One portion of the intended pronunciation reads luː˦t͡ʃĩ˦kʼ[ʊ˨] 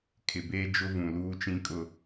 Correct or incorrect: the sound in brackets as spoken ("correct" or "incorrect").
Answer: incorrect